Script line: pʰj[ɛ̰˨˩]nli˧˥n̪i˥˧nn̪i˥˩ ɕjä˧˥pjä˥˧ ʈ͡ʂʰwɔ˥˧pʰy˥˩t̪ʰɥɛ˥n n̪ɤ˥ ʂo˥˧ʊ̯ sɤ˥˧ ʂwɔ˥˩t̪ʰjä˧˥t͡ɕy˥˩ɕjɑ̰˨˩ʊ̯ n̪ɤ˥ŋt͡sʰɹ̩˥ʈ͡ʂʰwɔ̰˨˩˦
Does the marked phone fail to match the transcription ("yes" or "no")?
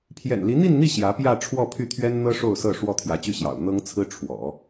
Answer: no